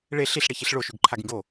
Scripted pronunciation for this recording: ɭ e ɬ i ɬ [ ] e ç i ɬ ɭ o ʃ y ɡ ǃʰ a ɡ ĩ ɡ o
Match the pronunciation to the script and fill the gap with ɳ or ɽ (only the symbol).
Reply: ɽ